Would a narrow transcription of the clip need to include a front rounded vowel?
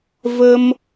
no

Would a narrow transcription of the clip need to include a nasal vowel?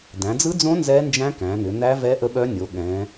yes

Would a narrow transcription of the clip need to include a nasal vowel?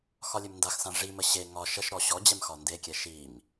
yes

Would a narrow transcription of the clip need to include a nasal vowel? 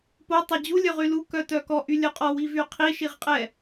no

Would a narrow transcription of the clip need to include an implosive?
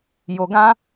no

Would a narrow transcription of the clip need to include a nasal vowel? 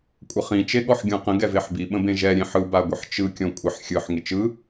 yes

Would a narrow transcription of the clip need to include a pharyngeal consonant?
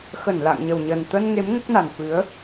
no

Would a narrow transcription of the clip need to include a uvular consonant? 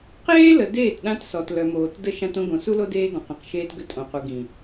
yes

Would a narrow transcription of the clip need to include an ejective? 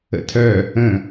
no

